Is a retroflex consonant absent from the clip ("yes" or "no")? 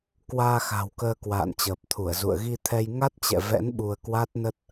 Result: yes